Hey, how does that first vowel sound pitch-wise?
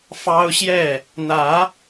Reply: high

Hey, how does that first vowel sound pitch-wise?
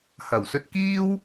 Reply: low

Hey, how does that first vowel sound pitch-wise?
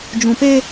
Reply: low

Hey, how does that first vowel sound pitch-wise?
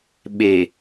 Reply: low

